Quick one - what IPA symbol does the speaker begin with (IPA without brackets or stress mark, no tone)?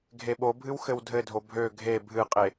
ɡʱ